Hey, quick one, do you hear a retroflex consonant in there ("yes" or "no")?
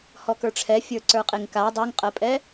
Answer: yes